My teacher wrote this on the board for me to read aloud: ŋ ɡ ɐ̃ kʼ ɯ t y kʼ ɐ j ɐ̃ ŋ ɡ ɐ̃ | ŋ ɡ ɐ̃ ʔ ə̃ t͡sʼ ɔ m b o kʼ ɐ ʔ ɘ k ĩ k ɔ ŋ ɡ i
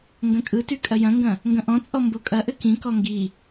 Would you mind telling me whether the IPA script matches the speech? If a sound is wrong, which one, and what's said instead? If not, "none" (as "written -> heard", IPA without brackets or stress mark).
ə̃ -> ɔ̃